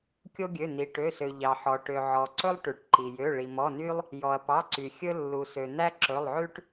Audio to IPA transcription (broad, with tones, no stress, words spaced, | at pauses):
kʲo˦ɡʲø˩˧˩ n̪i˩ʈø˩˧˩sø˩ ʎɑ˩ħɔ˩ʈø˩ ʕɔ˩ǀɵ˦lˠ ʈʉ˩ʈǃi˩ jø˩˧˩ɭi˩ mɔ˩˧˩ny˦lˠ | jɔ˩ɐ̯pɑ˩˧˩ǀy˩ xʲɵ˦ lːu˩sø˩ n̪æ˦ǁɵ˩˧˩lˠʕʉ˦ʈ